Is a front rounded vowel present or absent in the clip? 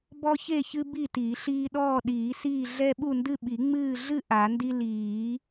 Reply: absent